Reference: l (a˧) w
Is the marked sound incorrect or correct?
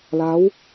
incorrect: a˦˥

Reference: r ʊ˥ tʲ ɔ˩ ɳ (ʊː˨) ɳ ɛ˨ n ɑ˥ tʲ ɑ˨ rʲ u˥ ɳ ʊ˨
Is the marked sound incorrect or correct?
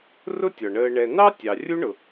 incorrect: əː˨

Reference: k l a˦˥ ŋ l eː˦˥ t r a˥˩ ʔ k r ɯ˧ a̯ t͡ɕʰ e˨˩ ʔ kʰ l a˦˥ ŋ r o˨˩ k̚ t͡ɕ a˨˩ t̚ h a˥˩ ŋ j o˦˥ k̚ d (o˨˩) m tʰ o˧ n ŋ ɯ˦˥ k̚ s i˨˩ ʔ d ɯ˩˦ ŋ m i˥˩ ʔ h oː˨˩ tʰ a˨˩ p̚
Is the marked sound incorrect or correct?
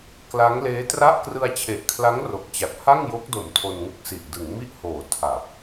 correct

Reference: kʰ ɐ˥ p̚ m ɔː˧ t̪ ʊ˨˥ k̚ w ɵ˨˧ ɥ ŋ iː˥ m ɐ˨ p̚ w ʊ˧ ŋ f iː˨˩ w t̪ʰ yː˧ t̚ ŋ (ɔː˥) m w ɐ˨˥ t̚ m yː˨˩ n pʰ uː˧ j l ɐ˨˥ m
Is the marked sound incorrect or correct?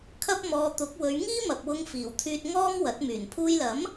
correct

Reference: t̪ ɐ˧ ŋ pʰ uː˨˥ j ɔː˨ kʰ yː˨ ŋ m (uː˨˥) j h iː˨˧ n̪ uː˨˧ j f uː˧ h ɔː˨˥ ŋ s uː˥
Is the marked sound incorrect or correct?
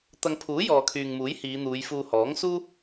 correct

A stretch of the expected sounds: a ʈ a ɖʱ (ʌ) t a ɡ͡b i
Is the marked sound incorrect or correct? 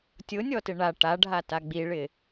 incorrect: a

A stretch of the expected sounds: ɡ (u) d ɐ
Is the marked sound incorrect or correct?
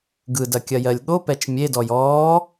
incorrect: ɯ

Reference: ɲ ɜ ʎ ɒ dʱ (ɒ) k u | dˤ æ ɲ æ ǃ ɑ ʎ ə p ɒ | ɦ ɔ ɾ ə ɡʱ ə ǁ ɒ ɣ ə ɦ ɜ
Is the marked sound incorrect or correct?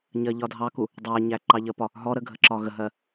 incorrect: ɑ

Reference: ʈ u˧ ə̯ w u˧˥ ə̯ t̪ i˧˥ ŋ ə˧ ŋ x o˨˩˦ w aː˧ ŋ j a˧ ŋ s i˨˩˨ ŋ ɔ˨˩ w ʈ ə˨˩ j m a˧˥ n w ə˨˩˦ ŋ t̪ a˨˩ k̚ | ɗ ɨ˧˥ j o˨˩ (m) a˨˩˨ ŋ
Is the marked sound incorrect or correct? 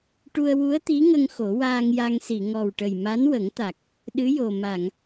correct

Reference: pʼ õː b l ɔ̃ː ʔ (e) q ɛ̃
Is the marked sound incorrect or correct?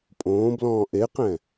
correct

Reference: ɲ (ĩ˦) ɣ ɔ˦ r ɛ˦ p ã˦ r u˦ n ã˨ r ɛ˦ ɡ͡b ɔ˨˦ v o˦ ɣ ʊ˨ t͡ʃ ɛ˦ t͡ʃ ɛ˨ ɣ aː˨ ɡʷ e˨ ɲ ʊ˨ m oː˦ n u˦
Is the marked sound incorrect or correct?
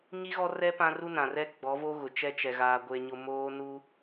incorrect: i˦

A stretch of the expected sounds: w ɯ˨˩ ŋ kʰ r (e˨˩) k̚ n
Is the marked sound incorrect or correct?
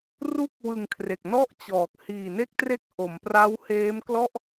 correct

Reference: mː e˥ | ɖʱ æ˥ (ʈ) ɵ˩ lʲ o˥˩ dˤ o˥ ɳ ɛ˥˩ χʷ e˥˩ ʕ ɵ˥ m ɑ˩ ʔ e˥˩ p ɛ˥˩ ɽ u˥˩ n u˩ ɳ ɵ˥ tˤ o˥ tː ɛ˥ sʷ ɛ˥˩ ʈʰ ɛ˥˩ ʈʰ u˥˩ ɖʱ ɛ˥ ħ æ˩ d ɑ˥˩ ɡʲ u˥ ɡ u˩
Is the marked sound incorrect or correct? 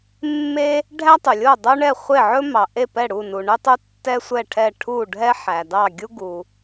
incorrect: tˤ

